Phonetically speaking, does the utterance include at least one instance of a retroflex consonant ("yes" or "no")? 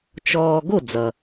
no